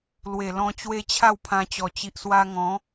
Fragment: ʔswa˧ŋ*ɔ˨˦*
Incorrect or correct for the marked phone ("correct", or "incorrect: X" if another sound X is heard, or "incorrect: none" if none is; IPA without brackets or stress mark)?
incorrect: ɔ̃˨˦